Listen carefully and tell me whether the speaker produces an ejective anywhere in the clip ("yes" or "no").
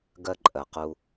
yes